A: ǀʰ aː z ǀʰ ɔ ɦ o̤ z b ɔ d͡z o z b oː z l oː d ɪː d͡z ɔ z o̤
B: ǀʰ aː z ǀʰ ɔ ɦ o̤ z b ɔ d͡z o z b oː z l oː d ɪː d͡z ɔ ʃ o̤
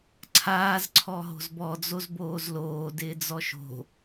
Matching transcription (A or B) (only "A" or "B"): B